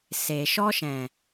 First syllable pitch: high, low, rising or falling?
low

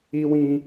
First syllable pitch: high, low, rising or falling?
high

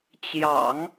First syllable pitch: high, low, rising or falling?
low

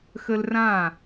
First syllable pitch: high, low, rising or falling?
high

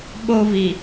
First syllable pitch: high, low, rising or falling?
high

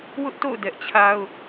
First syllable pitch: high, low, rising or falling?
high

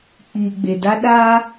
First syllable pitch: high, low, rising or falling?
low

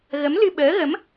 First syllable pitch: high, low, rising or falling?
rising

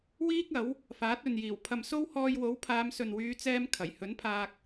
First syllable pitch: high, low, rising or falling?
high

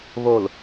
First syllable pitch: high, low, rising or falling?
low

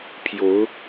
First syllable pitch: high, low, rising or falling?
rising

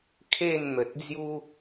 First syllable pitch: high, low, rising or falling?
falling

